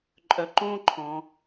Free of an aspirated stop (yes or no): no